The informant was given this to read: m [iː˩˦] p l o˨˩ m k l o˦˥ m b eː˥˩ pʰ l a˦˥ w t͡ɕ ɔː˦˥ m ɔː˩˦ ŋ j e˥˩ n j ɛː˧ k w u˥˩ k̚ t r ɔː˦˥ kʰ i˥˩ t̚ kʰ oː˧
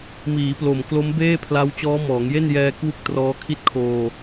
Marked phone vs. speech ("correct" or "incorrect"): correct